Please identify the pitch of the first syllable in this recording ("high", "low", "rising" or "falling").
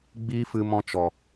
high